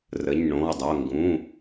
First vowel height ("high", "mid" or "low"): mid